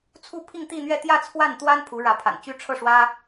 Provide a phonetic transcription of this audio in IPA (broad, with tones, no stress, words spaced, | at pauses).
t͡sʰu˥˧pʰi˥˧ŋt̪i˥˧n̪ɥɛ˥˧ t̪jä˥˧t͡sʰwa˥˩nt̪wa˥n pʰu˧˥ɻä˧˥pʰa̰˨˩nt͡ɕy˥ ʈ͡ʂʰɤ˥˩ʂwä˥